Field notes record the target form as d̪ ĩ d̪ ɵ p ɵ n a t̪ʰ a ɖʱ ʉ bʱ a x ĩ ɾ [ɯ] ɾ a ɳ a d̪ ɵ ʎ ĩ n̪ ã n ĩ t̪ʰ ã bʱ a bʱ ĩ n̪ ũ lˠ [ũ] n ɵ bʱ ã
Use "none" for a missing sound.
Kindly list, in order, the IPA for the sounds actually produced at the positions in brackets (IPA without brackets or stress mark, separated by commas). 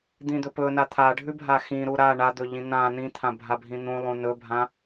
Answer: u, ũ